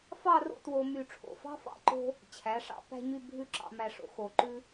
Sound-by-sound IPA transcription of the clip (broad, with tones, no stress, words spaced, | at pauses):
fɑ˥˧ro̰˥˧two˧ my˧˩ʈ͡ʂʰo̰˧˩fɑ̤˥ fɑ̰˥˧ǃo̤˥ | t͡ɕʰæ˩˧ʂɑ̰˧ pæ̤˥ɲy˥˧ bʱʉ˥ǁɑ̰˧mæ˧ʂo̰˧ xo˧˩ǃʉ˥